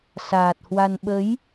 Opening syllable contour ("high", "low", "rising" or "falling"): low